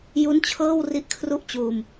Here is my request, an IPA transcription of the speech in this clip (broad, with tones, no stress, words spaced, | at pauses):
ju˦˥nt͡ɕʰɤː˥˩w ri˦˥ʔkʰru˥˩ʔ t͡ɕuː˧m